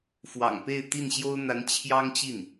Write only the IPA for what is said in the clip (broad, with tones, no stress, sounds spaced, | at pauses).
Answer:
f w ɑ̰˨˩ ŋ p e˥˧ ɪ̯ t̪ i˥˩ n ɕ j o˥ ʊ̯ n̪ a˧˥ n t͡ɕʰ j ɑ˥ ŋ t͡ɕ i˥˩ n